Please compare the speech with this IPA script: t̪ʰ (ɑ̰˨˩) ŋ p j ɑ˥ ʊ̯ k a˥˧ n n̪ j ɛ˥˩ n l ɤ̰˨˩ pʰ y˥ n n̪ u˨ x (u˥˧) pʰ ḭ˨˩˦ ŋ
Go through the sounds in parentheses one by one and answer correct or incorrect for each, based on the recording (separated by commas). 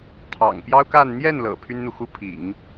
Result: correct, incorrect